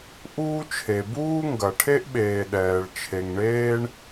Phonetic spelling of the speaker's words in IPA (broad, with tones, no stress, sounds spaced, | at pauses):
ʔ uː˥ t͡ʃʰ e˩ b uː˥ ŋ ɡ ɐ˩ ʈʰ e˥ ʔ ɓ eː˩ ɗ ɛː˩ ɭ t͡ʃʰ e˩ ŋ ɳ eː˥ ɳ